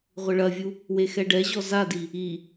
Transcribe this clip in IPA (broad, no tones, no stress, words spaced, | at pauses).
ʁʷɘɭɐvʲu | wexɛɖɛʑɔ zadi | i